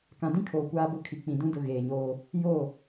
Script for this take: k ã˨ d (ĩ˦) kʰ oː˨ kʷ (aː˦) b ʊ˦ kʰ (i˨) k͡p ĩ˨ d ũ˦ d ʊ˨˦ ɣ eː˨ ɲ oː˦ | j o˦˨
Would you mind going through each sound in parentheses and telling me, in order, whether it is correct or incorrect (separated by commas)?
correct, correct, correct